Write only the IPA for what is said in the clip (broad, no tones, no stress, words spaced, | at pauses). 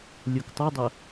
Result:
lʲoktˤɐdˤɐ